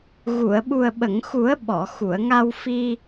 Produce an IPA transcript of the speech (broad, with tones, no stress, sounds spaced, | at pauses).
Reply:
ɣ u˨˩˨ ə̯ ɓ u˨˩ ə̯ ɓ ə˨˩˨ ŋ x u˨˩˦ ə̯ ɓ ɔ˨˩˨ x u˨˩˨ ə̯ ŋ a˧ w f i˧